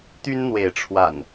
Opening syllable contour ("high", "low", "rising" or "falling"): high